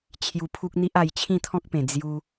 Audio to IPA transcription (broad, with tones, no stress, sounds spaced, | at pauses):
t͡ɕʰ j u˧ pʰ u˦ k̚ n̪ i˦ ʔ a˧ j t͡ɕʰ ĩ˥˧ t̪ʰ ɔ̃˦ k̚ p ẽ˨˩ d͡z j u˧